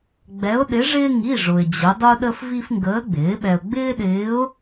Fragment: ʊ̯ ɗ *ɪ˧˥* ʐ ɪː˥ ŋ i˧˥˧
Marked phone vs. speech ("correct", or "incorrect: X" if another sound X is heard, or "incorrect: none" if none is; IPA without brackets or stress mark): correct